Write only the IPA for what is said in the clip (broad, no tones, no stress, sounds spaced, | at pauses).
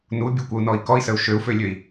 n u bʲ ɯ kʷ ə u̯ n ɔ i̯ k ɔ i̯ s ə u̯ ʃ ø u̯ f ø lʲ ø i̯